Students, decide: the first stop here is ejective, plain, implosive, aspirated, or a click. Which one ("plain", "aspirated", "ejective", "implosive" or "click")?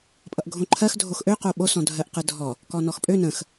ejective